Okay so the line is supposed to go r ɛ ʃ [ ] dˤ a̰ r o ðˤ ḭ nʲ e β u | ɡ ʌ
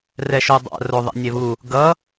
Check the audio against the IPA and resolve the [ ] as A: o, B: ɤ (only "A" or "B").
A